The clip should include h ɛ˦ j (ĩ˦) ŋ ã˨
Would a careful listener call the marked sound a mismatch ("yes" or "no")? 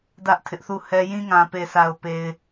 no